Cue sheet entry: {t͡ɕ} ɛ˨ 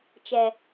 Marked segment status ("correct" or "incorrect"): incorrect